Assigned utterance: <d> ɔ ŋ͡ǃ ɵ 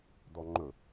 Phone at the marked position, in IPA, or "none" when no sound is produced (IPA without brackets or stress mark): d